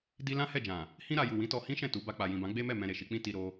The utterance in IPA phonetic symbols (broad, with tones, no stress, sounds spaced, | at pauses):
d i˦ l ã˦ h ɛ˦˨ d͡ʒ ã˨ | h ĩ˦ ɾ a˧ j u˨ w ĩ˨˦ t ɔ˧ h ĩ˦ ʃ ɛ̃˦˨ t u˨˦ b a˧ k͡p a˨ j ĩ˨ b ã˨˦ ɡ͡b e˦ m ɛ˦˨ m ɛ̃˧ ɾ e˨ ʃ i˧ k͡p ĩ˦ t i˧ ɾ o˧